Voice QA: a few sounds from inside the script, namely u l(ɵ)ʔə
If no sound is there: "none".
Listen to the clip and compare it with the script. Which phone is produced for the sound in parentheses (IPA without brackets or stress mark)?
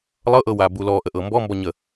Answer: ɔ